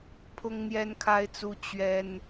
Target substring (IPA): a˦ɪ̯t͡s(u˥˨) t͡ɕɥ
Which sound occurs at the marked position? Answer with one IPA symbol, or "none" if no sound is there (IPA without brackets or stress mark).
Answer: u˦